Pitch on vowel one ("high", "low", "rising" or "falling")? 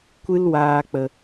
high